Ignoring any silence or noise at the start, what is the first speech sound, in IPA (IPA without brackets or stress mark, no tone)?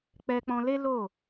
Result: k͡p